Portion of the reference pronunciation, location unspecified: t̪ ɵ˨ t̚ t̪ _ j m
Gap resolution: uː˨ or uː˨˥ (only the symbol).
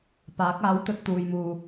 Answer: uː˨